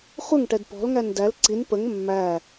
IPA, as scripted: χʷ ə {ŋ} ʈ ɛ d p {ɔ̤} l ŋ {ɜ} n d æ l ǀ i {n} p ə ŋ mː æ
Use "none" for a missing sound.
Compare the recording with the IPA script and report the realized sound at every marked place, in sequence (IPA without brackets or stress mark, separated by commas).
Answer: ŋ, ɔ̤, æ, n